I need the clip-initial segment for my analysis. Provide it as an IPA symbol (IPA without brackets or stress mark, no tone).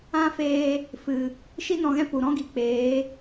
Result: ã